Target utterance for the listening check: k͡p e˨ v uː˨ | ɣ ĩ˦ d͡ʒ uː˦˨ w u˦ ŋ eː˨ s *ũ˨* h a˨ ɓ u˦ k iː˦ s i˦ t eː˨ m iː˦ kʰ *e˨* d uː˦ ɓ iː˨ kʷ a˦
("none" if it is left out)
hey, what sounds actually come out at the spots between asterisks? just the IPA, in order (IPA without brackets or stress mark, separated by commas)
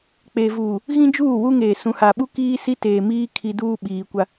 ũ˨, i˨